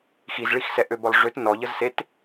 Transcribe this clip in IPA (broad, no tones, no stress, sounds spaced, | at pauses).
x i z ɭ i x s ɛ ʔ ø b ɔ lˠ ʐ ø t n ɔ ʎ ə z s e t